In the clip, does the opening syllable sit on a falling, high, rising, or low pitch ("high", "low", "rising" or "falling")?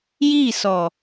falling